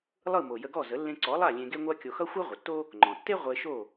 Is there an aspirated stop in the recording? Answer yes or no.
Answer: no